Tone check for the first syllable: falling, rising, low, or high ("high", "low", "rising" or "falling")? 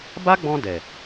high